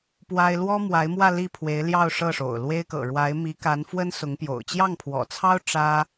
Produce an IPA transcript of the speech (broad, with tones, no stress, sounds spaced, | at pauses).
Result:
p w a˥ ɪ̯ l w ɔ˥ m w a˧˥ ɪ̯ m w ä˥˧ l i˥˩ pʰ w e˧˥ ɪ̯ l j ɑ˥˧ ʊ̯ ʂ ɤ˥˩ ʂ o̰˨˩ ʊ̯ l w e˥ ɪ̯ k ɤ̰˨˩ ɻ w a˧˥ ɪ̯ m i˧˥ k a˧˥ n f w ə˥ n s ʊ˧˥ ŋ p j o̰˨˩ ʊ̯ t͡ɕ j ɑ˥˩ ŋ pʰ w ɔ̰˨˩ t͡sʰ ɑ˥ ʊ̯ ʈ͡ʂ ä˥